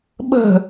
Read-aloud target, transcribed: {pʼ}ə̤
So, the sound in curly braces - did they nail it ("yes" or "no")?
no